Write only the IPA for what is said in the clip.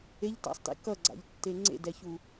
eʎta̰sˤtḛ kʌɡ͡ǀa̰ʎtːe ŋ͡ǀḛdɛçu

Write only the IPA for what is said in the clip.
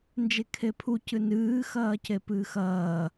nd͡ʒekʰepʰu cɨnɨː xɐːcepɨːxɐː

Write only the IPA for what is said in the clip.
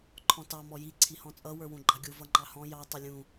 ǃʰɔ̃tɑ mɔji ǀʰihɔ̃t͡sʼʌ wə˞wũɡ͡ǃɑɡʲu vʌŋ͡ǃɑhɔ̃ jɑ tˤɪlʲũ

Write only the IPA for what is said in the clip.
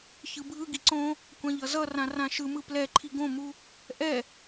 çɯbʱɯɡi ǀõ | kʷãʎʌzʌrã rãʃɯmɯ plɛǃʰi ɡõmu | ʔɛ

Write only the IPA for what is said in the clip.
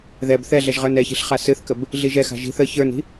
ðɛb θɛɮɛʒ ʁə˞nɛçi̤ɬ χasɨθkəb | ɮiʒɛxa̤ ʒi̤θ ə çə˞ni̤

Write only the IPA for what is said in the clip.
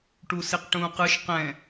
ʈusiqʈũːqɯʃ qɛ̃

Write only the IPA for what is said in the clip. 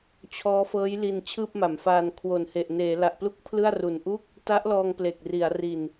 t͡ɕʰɔː˦˥fɤː˦˥j li˧n t͡ɕʰɯː˥˩p̚ma˩˦mfaː˧n kʰwo˨˩n he˨˩ʔneː˩˦la˨˩ʔplu˥˩k̚ pʰlɯ˥˩a̯ru˨˩nʔu˥˩k̚ | ta˦˥ʔlɔː˧ŋ ple˨˩k̚ri˩˦a̯ri˨˩n

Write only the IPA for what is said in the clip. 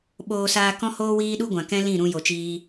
ɓoː˧saː˧kɔ̃˦ hoː˦ wiː˦ɗu˦ɡʷã˨ kɛ̃˦ lĩ˦˨ ɾũ˧ jo˨t͡ʃiː˧

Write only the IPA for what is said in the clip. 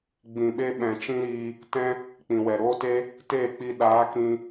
ɡ͡bĩ˨ɓe˧ ɓɛ̃˨t͡ʃĩ˦ɾiː˧ | tɛ̃˧ | k͡pĩ˨wɛ˨ɾoː˦te˦ | teː˦˨k͡pi˧ ɗaː˨˦kĩ˧

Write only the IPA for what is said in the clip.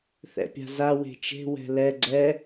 θɛ̰pʲa̤za we̤t͡ʃe̤ wɛ̤lɛ ɡ͡ǀɛ

